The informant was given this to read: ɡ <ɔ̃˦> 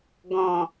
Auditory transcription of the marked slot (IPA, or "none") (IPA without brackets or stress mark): ɔ̃˨